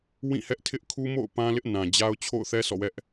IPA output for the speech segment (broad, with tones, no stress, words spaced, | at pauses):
wĩ˦˨hɛ˦ʔtʰɪ˦ʔ kʰu˦mo̰˦˨ʊ̯ pã˦lɪ˦ʔ nã˨d͡ʑa˦ʊ̯ t͡ɕʰo̰˦˨ʊ̯θɛ˦ sʰɔ̰˦˨wɛ˦ʔ